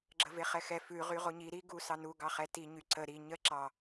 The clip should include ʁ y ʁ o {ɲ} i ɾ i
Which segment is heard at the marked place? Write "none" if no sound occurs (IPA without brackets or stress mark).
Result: ɲ